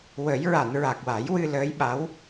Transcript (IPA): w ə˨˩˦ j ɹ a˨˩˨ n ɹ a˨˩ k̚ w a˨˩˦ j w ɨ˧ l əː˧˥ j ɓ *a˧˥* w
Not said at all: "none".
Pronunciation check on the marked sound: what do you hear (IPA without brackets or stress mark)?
a˧˥